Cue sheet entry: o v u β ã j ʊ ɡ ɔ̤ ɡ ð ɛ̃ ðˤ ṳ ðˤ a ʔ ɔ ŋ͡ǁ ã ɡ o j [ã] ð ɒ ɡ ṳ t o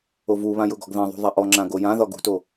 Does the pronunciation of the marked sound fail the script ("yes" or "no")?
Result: no